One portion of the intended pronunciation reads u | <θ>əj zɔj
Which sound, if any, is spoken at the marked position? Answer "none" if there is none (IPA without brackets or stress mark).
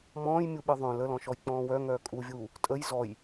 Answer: tʼ